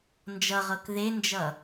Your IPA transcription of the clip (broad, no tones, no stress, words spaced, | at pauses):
nd͡ʒʌʁɤk ðend͡ʒʌ